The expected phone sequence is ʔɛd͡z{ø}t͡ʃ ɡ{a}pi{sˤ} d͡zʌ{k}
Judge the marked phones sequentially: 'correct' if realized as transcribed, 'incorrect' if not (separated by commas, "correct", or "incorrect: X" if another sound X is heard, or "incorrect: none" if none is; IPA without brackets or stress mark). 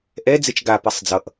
incorrect: e, correct, correct, incorrect: ʔ